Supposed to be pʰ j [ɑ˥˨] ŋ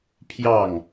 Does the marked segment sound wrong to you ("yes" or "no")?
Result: no